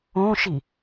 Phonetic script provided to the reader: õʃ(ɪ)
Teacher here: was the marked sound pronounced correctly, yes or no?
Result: no